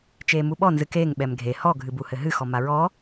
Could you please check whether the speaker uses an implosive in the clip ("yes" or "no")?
yes